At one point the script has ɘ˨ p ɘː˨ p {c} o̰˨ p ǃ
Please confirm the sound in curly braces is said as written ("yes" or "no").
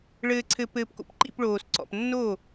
no